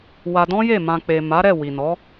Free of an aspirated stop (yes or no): yes